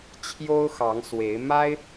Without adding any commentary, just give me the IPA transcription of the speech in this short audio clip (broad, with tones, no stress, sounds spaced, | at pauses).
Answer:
t͡ɕʰ j o˥ ʊ̯ x ɑ˧˥ ŋ s w e˧˥ ɪ̯ m a˥ ɪ̯